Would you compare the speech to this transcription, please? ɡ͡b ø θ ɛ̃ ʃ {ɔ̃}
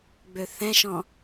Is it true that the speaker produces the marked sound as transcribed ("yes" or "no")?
yes